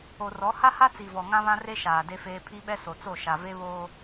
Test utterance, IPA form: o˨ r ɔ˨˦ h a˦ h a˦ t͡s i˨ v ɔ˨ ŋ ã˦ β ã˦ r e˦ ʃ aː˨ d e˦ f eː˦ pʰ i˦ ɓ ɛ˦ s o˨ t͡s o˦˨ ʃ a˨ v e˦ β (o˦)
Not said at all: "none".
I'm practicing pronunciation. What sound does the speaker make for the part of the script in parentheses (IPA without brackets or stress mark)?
oː˦